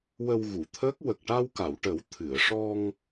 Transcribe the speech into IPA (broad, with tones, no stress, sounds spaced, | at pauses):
w ə˧ w ɣ u˨˩˨ t̪ʰ əː˦˥ k̚ w ə˨˩ k̚ ʈ a˧ w k a˨˩˨ w ʈ ə˨˩˦ w t̪ʰ ɨ˨˩˨ ə̯ ʂ ɔ˧ ŋ